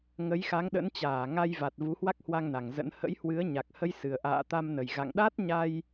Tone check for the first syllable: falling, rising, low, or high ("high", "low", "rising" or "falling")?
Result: rising